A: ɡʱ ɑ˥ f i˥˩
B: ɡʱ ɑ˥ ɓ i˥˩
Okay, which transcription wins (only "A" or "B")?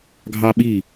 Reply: B